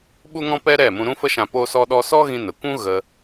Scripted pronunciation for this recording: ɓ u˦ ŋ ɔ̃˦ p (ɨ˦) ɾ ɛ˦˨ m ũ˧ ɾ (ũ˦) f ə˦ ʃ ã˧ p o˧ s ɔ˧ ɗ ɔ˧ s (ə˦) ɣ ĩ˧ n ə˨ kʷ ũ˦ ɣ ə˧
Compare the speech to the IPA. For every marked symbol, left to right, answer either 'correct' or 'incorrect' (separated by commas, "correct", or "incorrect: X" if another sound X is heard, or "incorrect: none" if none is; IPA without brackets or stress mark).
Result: incorrect: ɛ˦, correct, incorrect: ɔ˦